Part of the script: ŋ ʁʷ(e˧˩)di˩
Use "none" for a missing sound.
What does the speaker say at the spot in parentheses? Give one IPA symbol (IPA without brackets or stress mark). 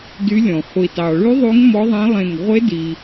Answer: e˧˥